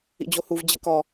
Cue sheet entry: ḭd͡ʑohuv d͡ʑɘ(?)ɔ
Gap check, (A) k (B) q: A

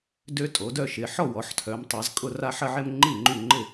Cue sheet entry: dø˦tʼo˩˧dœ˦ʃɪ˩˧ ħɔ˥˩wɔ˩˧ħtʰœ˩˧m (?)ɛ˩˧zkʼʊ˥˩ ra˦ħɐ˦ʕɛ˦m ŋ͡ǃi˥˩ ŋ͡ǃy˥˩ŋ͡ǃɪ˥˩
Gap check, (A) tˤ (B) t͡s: A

